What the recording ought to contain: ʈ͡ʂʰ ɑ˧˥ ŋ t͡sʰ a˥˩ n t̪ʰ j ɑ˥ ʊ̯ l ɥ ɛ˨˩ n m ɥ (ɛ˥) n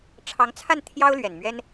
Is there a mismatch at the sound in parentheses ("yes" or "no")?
no